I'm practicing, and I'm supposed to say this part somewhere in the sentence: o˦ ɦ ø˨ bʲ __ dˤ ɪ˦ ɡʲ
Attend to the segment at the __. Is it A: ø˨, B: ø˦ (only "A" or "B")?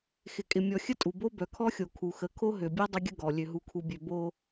B